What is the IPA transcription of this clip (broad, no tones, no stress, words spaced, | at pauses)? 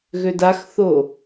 ɣødaxθo